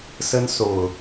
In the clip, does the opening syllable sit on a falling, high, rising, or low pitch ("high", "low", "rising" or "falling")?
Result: high